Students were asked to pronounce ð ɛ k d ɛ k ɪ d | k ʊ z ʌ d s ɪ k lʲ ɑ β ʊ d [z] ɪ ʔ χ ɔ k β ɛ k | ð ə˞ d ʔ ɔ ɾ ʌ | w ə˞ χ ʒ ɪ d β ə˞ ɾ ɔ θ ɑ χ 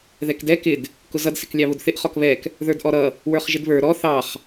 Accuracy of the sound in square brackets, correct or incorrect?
incorrect: θ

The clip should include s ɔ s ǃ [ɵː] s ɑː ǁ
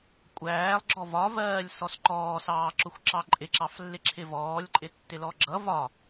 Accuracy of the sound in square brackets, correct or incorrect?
incorrect: ɔː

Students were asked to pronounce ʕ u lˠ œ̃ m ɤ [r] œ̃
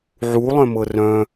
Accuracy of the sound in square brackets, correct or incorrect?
correct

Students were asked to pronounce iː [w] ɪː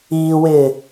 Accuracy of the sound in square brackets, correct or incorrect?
correct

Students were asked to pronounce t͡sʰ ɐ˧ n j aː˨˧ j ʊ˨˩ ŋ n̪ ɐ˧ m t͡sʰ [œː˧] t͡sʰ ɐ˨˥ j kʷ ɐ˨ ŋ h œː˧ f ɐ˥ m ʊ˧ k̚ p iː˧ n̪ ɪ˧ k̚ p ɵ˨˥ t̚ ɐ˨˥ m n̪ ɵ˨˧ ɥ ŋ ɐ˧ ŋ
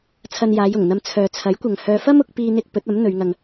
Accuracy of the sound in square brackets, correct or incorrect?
incorrect: œː˨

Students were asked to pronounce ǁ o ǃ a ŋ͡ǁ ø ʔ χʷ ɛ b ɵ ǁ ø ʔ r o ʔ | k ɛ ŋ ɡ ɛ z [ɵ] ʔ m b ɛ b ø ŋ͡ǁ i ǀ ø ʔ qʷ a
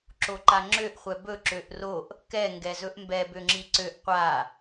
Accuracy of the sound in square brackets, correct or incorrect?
correct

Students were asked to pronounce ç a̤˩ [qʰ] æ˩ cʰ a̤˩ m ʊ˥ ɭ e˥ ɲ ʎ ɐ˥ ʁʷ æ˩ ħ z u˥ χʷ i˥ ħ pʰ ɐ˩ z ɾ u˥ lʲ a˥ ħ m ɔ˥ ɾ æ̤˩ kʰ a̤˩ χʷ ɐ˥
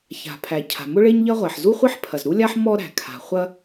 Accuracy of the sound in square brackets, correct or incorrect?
incorrect: pʰ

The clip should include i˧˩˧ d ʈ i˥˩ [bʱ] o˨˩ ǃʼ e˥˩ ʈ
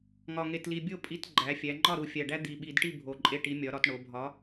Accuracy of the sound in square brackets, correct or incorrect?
correct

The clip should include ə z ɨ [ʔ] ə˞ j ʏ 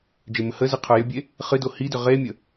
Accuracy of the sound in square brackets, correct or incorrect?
incorrect: qʰ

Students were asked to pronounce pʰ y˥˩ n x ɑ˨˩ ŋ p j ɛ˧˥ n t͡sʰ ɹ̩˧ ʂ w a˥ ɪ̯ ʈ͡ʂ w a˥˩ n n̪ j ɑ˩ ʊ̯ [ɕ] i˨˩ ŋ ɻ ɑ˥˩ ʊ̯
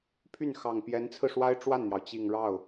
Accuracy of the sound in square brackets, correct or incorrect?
incorrect: t͡ɕ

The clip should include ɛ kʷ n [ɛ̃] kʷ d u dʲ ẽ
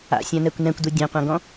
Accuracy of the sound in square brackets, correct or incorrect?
correct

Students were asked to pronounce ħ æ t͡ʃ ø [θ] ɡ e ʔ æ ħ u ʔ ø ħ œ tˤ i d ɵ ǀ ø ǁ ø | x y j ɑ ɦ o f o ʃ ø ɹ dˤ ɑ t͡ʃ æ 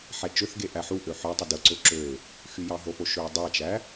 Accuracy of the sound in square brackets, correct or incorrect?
correct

